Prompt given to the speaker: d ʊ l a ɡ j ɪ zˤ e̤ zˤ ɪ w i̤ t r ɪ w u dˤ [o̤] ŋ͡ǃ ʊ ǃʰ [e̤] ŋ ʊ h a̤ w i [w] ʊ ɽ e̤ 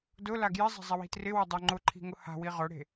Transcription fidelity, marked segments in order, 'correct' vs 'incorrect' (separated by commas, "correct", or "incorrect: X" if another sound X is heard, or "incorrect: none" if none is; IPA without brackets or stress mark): incorrect: o, incorrect: i̤, incorrect: ʁ